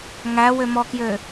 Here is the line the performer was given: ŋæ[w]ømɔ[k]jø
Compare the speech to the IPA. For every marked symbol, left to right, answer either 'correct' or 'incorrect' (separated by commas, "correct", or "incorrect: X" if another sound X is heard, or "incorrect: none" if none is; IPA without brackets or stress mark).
correct, correct